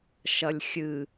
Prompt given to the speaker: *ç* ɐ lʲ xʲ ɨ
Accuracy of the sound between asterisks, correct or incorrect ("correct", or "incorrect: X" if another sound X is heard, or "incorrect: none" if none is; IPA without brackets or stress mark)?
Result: incorrect: ʃ